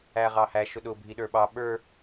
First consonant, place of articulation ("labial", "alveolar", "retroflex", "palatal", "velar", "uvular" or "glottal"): uvular